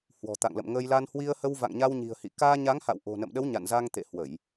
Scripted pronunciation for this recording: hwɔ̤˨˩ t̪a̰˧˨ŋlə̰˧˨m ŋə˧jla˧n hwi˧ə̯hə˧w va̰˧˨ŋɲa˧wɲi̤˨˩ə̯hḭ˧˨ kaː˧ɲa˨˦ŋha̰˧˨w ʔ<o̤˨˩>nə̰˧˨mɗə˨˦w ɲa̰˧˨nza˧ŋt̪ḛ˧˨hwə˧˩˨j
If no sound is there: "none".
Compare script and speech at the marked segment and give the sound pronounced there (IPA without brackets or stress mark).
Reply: o̤˨˩